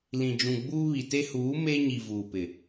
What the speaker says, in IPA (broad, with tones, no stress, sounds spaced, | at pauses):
l ĩ˨ d͡ʒ ũ˨ ɡ͡b uː˦ β i˨ t e˦ h uː˨˦ m e˦ ɲ i˨ v uː˨ p ɪ˨